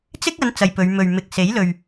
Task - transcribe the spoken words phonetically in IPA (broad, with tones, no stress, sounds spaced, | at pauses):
t͡s ɪ˥ k̚ ɐ˨˧ n t͡s ɐ˨ j p ɵ˨˧ ɥ m ɵ˨ ɥ m ɪ˨ k̚ s e˨˥ j l ɵ˨ ɥ